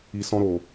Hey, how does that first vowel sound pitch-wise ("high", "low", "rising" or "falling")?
low